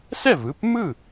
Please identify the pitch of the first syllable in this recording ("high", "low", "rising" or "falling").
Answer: falling